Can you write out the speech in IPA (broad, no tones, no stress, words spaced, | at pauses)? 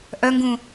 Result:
ʔœŋɡũ